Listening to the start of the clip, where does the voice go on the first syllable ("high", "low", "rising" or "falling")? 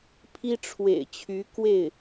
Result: high